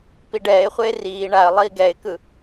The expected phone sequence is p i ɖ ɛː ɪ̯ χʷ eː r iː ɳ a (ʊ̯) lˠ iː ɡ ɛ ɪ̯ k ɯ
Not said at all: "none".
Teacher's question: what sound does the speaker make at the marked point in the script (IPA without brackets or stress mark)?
ə̯